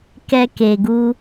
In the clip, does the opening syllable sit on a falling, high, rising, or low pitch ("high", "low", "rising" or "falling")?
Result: high